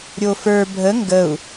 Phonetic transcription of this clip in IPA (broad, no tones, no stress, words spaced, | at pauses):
ɾʲofə˞ bʱə ŋɡəu̯